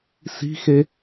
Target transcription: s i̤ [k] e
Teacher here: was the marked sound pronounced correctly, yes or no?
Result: no